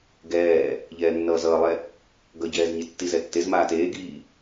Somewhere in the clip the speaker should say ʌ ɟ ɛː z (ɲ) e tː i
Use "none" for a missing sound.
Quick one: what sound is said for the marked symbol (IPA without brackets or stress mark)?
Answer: ɲ